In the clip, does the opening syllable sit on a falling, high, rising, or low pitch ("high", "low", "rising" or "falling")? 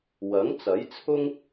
rising